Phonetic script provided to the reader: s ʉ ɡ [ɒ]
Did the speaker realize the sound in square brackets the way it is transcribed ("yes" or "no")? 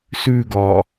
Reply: yes